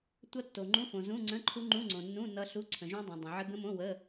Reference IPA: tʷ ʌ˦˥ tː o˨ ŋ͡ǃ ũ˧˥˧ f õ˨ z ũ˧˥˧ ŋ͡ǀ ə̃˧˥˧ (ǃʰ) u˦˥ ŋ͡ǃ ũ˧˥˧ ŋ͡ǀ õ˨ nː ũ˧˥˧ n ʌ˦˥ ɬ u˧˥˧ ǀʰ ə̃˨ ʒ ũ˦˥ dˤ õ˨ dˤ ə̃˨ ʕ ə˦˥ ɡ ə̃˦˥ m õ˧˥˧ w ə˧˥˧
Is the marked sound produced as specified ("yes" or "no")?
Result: yes